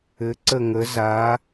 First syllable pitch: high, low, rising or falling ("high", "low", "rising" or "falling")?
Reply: rising